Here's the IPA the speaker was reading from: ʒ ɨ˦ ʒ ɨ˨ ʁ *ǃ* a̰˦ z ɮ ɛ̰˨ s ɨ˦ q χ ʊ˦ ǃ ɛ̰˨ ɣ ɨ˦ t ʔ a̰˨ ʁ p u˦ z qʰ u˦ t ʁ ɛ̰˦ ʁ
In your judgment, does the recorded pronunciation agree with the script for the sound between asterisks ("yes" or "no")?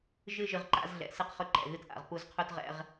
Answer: yes